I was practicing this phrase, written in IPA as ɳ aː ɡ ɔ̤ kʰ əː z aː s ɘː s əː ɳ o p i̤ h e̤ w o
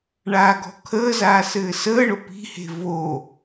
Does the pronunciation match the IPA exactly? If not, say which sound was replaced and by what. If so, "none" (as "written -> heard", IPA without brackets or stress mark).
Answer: w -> v